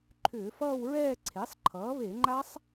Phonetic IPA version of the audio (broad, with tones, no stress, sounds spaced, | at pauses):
ǃʰ ʏː˧˩˧ f ʌː˥˧ w ɹ ɛː˥˧ ǀʰ e˩˥ sˤ ǃʰ ʌː˩˥ β e˧˩˧ ŋ͡ǃ a˦˥ sˤ